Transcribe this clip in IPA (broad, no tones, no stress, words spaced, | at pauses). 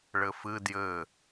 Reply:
ɭɘfɨ djɘ